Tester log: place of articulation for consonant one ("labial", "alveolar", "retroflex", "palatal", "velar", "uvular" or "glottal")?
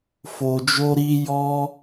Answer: labial